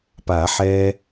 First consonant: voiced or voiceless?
voiceless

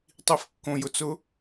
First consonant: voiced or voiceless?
voiceless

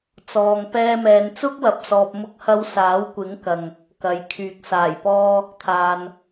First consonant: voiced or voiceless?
voiceless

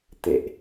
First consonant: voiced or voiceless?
voiceless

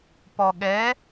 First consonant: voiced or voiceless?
voiceless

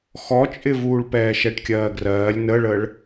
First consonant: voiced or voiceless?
voiceless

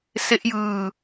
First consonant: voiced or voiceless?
voiceless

